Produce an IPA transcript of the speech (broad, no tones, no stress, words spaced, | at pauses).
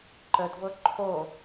ǃədvɤ ǃʰo